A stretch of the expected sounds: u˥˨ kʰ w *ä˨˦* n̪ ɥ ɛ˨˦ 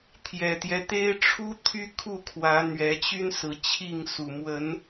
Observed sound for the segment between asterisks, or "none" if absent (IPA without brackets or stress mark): ä˨˦